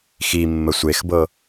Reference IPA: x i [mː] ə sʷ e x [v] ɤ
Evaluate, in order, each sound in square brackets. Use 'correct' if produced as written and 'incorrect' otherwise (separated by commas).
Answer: correct, incorrect